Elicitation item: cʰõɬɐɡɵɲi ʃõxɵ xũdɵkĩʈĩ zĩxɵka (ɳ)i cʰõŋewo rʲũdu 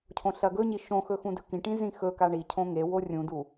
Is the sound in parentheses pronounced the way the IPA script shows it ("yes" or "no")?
yes